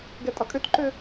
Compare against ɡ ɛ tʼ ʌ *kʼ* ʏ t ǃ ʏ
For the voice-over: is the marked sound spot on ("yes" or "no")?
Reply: yes